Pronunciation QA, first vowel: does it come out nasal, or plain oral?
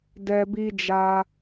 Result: oral